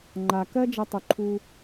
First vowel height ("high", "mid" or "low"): low